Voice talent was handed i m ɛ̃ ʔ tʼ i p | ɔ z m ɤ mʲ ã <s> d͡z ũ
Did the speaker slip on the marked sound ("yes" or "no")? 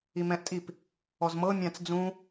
yes